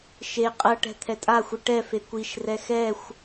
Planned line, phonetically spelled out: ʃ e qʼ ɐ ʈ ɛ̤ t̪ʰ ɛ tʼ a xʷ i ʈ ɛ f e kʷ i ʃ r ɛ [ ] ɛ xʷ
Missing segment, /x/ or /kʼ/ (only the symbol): x